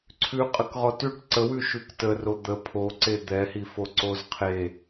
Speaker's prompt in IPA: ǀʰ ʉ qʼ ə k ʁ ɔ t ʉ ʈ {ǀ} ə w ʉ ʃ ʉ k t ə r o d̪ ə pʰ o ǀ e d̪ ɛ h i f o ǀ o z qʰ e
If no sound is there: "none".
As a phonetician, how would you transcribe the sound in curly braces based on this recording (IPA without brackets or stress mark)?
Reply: ǀ